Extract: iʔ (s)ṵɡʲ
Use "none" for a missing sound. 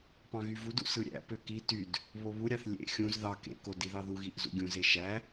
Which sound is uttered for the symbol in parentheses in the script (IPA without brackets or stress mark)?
z